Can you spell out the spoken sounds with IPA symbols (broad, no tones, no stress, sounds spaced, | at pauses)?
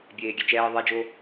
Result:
bʲ eː ɡʲ ɛ t͡ʃ ɛː ðˤ ɛ d͡ʒ o